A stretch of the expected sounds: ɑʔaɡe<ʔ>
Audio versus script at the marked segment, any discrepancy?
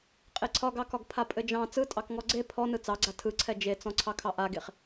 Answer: yes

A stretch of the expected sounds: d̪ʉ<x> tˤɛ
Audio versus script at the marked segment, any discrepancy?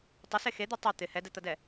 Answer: yes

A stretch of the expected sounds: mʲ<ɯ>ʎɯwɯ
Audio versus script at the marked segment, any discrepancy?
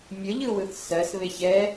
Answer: yes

